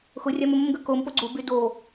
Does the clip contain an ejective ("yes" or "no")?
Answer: no